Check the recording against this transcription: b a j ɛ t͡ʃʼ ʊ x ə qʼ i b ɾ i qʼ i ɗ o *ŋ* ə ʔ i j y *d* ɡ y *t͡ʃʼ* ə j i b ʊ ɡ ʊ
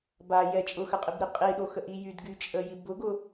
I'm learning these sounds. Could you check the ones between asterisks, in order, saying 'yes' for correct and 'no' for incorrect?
no, yes, yes

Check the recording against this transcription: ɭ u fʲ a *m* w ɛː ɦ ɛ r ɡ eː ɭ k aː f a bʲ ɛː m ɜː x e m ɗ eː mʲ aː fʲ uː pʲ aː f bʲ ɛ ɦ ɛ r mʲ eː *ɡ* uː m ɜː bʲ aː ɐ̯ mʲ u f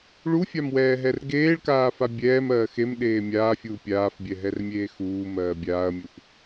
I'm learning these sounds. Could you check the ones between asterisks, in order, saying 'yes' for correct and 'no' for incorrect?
yes, no

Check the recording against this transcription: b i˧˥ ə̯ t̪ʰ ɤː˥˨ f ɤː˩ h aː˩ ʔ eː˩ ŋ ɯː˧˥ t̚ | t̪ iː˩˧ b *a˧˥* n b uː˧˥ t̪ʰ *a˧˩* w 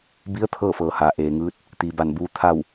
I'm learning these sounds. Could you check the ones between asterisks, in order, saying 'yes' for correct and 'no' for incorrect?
no, no

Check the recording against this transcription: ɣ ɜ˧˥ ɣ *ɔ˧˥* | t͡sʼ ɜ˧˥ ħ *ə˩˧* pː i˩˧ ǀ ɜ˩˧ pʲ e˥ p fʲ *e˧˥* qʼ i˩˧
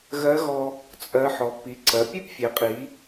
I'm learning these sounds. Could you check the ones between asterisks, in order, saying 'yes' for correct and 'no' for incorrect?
no, no, no

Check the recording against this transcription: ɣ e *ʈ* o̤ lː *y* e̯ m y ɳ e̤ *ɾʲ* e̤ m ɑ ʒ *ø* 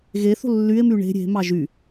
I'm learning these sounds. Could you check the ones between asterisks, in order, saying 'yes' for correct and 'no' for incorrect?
no, yes, yes, no

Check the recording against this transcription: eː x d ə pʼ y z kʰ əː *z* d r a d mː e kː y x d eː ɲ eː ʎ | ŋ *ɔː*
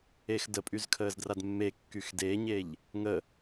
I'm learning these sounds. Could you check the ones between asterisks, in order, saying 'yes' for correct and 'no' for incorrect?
yes, no

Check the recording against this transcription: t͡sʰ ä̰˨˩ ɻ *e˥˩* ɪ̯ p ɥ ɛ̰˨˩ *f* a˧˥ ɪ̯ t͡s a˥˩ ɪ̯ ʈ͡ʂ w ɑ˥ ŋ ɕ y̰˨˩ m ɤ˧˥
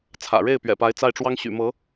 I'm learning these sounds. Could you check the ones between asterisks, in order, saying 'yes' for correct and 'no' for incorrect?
yes, no

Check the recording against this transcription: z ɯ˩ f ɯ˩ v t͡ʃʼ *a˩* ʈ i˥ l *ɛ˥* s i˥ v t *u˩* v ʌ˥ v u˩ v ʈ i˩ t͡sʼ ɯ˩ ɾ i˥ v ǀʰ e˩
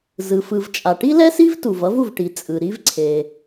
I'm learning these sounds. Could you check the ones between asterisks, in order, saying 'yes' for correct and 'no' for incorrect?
yes, yes, yes

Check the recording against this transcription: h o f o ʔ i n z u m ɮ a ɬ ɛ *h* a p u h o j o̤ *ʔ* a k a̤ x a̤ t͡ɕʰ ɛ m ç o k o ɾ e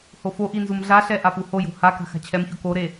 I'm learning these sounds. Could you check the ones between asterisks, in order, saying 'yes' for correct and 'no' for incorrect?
no, no

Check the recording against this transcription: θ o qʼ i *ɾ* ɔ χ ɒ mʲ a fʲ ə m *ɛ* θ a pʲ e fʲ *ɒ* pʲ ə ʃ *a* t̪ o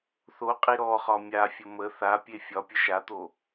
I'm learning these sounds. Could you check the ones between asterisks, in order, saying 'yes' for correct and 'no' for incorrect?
yes, no, yes, yes

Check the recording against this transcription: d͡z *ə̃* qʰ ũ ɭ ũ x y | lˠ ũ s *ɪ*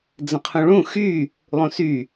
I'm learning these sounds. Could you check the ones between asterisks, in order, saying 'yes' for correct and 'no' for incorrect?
yes, no

